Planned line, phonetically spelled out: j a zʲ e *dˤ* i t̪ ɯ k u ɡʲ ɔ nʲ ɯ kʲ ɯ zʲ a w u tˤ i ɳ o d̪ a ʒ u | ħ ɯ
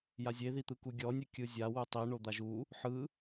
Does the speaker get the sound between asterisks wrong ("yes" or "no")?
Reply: yes